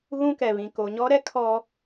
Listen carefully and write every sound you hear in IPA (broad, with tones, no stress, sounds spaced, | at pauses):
ɣ ũ˦ k ɛ˨ β ĩ˨ k o˨ ɲ ɔ˦ ɾ ɛ˦ kʰ ɔ˦